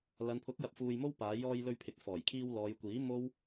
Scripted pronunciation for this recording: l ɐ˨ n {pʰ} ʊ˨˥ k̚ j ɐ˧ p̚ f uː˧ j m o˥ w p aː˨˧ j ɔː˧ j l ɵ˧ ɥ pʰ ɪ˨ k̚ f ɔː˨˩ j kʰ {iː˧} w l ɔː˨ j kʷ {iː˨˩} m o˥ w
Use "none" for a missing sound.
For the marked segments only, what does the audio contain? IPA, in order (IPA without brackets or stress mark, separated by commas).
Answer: pʰ, iː˧, iː˨˥